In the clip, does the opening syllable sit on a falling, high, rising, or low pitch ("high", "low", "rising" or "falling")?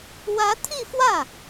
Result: rising